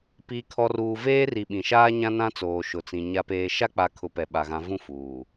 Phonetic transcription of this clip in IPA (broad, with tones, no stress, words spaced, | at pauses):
piː˨kʰɔ˨ruː˨ veː˦ri˨ ɓĩ˨ʃaː˦ɲã˦ nã˦t͡soː˨ ʃʊ˨t͡sĩ˨ ɲa˨peː˨ ʃa˦k͡pa˨kʰʊ˨ pɛ˨ɓa˨ɣã˨˦ vũ˦˨fuː˨